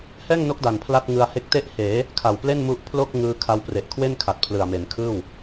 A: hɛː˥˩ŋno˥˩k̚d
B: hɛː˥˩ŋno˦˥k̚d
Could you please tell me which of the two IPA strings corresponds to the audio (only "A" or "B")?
B